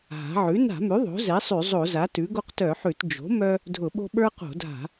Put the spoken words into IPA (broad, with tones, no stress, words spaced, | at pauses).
ɦa̤˩˥ ʕʉ˩˥ na̤˧˩˧mʉ˩˥ ðˤo̤˩˥zɛ˩˥ sˤʉ˧˩˧zˤo˧˩˧za˩˥ tʉ˩˥ ɡo˦qtœ˧˩˧ħʉ˧˩˧t d͡ʒo̤˩˥ mœ˦ | dʱʊ˧˩˧ɓo̤˦ ɓə˞˦qo̤˧˩˧dʱa̤˧˩˧